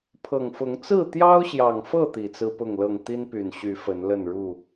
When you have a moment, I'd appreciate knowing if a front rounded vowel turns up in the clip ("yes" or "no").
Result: yes